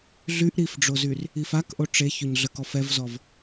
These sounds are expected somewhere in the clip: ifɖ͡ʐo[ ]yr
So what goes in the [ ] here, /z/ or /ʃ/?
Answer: z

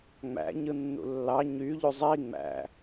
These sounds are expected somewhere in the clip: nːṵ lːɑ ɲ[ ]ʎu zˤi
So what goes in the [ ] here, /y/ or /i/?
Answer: y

